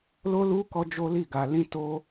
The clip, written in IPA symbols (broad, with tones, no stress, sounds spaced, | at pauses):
l o˦ l u˦ k ɔ˦ d͡ʒ o˦ l i˦˨ ɡ a˧ l ĩ˦ t o˦